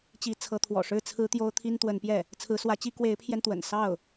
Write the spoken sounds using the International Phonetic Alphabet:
t͡ɕ i˧˥ t͡sʰ ɤ˧˥ t̪ʰ w ɔ̰˨˩ ʂ ɻ̩˥˩ t͡sʰ ɹ̩˥ t̪ j o˥ ʊ̯ t̪ʰ i˥ n t̪ w ə˧˥ n p j ɛ˥˩ | t͡sʰ ɹ̩˧˥ s w ä˧˥ t͡ɕ i˥ k w e˧˥ ɪ̯ pʰ j ɛ˧ n t̪ w ə̰˨˩ n s ɑ˥˩ ʊ̯

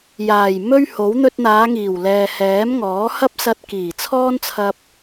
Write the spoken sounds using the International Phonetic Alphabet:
j aː˨˩ j m ɵ˥ ɥ h o˨˥ w n̪ ɵ˧ t̚ n̪ aː˨˧ ŋ iː˨˩ w l ɛː˨ h ɛː˨˥ m ŋ ɔː˨˥ h ɐ˥ p̚ s ɐ˧ t̚ k iː˨˩ t͡sʰ ɔː˥ n t͡sʰ ɐ˧ p̚

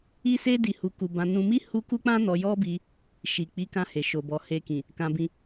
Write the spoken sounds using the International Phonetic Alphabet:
i˦ s e˦ d i˧ h u˧ k u˧ b ã˧ n ũ˧ m i˦ h u˦ k u˦ k͡p ã˦ n ɔ˧ j ɔ˦ b i˧ | ʃ i˨ k͡p i˨˦ k ã˧ h e˨ ʃ o˨ b ɔ˨ h e˧ k ĩ˨ | k ã˧ b ĩ˧

